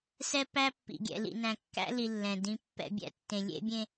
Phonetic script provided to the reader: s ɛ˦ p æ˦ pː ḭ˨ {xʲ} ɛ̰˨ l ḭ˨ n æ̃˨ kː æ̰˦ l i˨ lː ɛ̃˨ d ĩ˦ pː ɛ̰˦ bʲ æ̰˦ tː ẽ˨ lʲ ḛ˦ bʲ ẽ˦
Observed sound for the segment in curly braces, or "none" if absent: ɡʲ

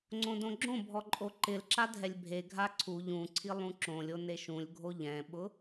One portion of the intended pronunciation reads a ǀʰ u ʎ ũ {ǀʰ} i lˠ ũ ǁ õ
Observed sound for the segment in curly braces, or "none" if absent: ǀʰ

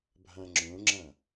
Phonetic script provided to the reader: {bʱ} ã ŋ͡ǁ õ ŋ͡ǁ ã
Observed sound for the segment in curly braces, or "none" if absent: bʱ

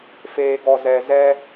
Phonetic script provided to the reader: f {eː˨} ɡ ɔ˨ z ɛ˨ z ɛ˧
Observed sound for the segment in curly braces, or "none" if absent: eː˨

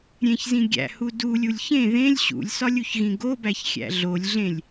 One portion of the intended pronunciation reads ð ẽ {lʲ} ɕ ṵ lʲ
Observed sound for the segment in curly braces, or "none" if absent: lʲ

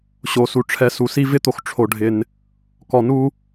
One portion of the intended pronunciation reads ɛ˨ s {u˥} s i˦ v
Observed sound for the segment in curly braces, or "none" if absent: u˩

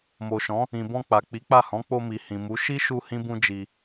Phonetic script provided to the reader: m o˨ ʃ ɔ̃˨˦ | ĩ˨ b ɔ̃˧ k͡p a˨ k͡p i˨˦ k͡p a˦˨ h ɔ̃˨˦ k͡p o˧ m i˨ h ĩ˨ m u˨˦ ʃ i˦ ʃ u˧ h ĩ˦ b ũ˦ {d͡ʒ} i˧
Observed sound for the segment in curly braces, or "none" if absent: d͡ʒ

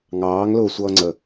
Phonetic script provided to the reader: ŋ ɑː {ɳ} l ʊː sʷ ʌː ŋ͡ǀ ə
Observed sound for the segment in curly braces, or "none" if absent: ŋ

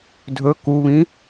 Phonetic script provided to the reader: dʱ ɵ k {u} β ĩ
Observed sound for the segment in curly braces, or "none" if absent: u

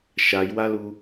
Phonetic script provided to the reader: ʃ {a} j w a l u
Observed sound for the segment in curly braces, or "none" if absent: a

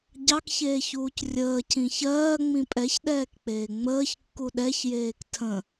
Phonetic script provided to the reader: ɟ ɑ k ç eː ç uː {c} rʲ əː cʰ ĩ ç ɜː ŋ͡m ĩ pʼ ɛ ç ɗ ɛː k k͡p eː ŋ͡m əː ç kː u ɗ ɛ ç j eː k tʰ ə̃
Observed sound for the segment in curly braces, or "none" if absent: c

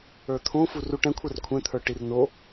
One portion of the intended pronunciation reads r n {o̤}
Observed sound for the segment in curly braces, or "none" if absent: o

